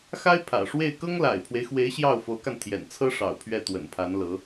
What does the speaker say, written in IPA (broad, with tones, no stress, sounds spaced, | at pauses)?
x a˥ ɪ̯ pʰ ä̰˨˩ ʂ w e˥˩ ɪ̯ k ɤ˥ ŋ l a̰˨˩ ɪ̯ pʰ w e˦ ɪ̯ x w e˧˥ ɪ̯ ɕ j ɑ˥˩ ʊ̯ f o˧˥ ʊ̯ k a˧ n t̪ʰ j ɛ̰˨˩ n t͡sʰ ɤ˥ ʂ ɑ̰˨˩ ʊ̯ pʰ ɥ ɛ˥˩ t̪ w ə̰˨˩ n pʰ a˧˥ n l ɤ˧˥